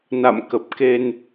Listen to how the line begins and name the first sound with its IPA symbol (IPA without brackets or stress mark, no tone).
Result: n